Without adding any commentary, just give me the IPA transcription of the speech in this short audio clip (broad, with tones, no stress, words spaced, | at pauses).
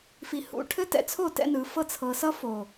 fi˨hṵ˨ʈʰɘ˦ tɛ̰˨t͡sʰo˦˨ tɛ̰˦nɯ˨˦fɤ˦ t͡sʰɤ˨sʌ˦fo˨